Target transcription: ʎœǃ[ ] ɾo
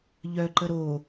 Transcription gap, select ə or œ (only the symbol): ə